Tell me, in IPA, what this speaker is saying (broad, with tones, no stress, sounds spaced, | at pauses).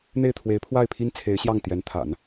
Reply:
n̪ e˥˩ ɪ̯ t̪ʰ w e˧˥ ɪ̯ pʰ w a˥˩ ɪ̯ pʰ i˥ n t͡sʰ e˧˥ ɪ̯ ɕ j ɑ˥˩ ŋ t̪ j ɛ˧˥ n t̪ʰ a̰˨˩˦ n